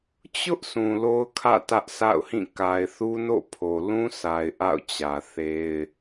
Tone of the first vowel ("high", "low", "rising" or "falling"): high